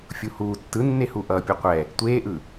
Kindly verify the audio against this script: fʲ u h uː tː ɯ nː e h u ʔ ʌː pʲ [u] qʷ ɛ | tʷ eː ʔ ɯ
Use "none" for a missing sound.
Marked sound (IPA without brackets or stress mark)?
o